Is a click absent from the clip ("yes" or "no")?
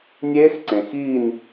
no